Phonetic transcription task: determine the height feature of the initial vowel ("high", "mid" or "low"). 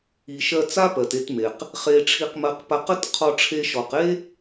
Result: high